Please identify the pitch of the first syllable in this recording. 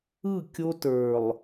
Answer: falling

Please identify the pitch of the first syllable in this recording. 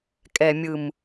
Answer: low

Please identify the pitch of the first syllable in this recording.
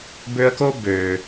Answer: high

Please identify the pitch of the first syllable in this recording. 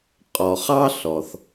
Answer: low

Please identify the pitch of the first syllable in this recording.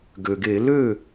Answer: low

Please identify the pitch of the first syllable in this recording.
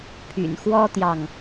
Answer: low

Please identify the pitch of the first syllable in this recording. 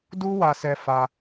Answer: high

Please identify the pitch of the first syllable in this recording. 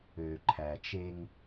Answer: low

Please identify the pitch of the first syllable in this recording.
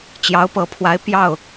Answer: rising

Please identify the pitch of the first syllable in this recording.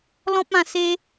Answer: high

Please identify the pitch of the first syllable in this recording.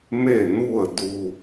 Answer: falling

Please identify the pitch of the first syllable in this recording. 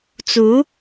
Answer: rising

